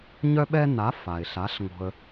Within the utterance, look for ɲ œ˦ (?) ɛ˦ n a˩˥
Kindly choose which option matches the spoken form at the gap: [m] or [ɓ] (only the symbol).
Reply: ɓ